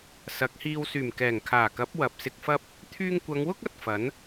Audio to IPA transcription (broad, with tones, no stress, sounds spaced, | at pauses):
s ɐ˨˥ k̚ h iː˧ w s yː˨˩ m k ɛː˨˩ ŋ kʰ aː˨˩ k ɐ˨˥ p̚ w ɐ˨ p̚ s ɪ˧ k̚ f ɐ˥ p̚ | t̪ʰ yː˧ ŋ kʷ ɐ˨˧ ŋ w ʊ˥ k̚ ɐ˨˥ t̚ f ɐ˨˥ n